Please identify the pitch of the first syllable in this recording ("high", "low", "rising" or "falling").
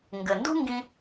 low